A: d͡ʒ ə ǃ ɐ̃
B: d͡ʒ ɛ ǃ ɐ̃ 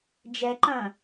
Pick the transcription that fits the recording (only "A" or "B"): B